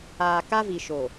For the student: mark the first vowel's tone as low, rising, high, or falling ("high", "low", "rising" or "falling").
low